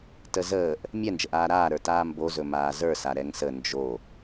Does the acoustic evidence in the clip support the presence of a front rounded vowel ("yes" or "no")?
no